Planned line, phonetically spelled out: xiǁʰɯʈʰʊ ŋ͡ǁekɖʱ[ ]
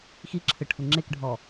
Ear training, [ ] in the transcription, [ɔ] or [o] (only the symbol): ɔ